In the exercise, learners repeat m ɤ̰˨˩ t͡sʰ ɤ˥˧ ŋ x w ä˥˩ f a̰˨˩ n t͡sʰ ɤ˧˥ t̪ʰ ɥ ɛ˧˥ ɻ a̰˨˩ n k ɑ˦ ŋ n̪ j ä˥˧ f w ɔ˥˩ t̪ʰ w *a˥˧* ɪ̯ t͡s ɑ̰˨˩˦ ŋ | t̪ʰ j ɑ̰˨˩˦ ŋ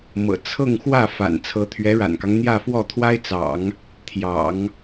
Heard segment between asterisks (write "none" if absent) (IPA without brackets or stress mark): a˥